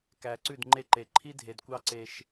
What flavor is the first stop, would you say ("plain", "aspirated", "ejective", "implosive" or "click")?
plain